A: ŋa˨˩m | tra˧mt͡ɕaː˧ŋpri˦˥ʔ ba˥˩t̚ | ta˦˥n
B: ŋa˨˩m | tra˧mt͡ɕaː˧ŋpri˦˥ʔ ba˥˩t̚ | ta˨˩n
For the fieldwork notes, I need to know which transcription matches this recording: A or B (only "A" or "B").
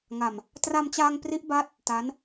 A